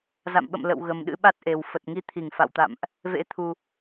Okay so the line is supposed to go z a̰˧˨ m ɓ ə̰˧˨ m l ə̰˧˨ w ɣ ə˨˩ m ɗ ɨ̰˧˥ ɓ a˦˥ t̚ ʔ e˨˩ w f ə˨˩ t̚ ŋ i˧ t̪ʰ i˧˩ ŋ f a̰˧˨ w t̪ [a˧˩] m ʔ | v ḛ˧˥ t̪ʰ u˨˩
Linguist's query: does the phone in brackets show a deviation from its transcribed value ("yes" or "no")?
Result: yes